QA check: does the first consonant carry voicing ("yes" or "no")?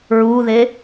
yes